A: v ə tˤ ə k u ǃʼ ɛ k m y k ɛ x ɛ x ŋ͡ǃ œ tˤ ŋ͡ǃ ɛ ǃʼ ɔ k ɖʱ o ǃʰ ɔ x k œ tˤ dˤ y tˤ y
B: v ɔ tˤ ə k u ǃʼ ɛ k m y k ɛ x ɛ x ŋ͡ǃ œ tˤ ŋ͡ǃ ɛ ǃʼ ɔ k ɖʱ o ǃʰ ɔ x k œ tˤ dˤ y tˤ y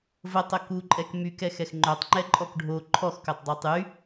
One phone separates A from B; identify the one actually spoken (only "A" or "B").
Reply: A